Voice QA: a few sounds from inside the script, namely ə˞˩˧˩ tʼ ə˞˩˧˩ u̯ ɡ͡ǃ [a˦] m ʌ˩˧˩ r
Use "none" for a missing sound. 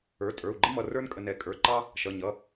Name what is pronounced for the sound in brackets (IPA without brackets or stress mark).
ə˦